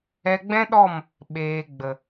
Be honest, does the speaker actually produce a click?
no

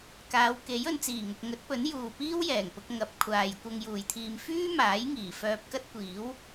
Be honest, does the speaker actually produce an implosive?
no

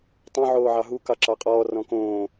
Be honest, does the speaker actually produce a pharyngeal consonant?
yes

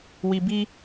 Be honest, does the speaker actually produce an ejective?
no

